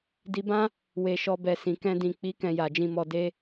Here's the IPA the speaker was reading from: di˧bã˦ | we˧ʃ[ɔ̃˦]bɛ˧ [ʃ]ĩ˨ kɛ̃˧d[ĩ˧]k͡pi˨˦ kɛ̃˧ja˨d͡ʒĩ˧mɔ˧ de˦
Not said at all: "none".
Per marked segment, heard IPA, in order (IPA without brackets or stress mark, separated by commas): ɔ˦, s, ĩ˨